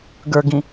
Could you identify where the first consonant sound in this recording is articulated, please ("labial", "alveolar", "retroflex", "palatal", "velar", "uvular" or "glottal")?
velar